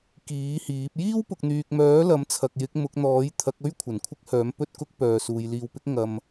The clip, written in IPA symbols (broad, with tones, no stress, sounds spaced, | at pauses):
k iː˨˥ h iː˨˥ p̚ j iː˥ w p ʊ˨ k̚ n̪ yː˨ k̚ m œː˨˥ l ɐ˨˥ m t͡sʰ ɐ˨ k̚ j ɪ˨˥ k̚ m ʊ˨˥ k̚ n̪ ɔː˨˥ j t̪ʰ ɐ˨˥ k̚ ɵ˥ ɥ kʷʰ ɐ˨˩ n kʷʰ ɪ˥ k̚ h œː˨˥ m p ɵ˧ t̚ k ʊ˧ k̚ p œː˨ s uː˨ j l iː˧ w p ɪ˥ k̚ ŋ ɐ˨ m